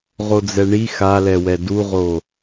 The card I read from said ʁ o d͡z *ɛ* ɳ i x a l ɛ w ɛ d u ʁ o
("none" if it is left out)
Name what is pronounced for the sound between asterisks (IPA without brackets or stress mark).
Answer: ɛ